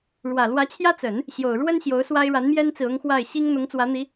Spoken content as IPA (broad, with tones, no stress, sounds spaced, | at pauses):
ɻ w ä˨˩ l w ä˧˥ t͡ɕʰ j ä˥ t͡s ə˨˩˦ n | ɕ j o˨˩ ʊ̯ ɻ w ə˥ n ɕ j o˧˥ ʊ̯ s w a˥ ɪ̯ ɻ a˧˥ n m j ɛ˥ n t͡s ɹ̩˨ ʊ˥ ŋ x w a˥˩ ɪ̯ ɕ i˥ ŋ n̪ ʊ˧˥ ŋ t͡s w ä˧˥ n̪ i˧˥